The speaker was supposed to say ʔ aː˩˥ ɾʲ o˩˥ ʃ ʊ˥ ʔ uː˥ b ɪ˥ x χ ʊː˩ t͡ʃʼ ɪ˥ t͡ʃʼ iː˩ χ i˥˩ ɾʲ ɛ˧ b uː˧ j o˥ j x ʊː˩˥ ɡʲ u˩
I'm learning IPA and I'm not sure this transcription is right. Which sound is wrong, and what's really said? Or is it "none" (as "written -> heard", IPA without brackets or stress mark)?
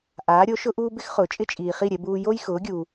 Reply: none